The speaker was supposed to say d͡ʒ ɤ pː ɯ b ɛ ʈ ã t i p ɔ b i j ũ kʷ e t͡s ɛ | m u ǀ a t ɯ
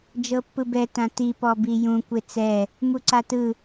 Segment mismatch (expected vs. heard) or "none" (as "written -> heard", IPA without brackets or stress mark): ʈ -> t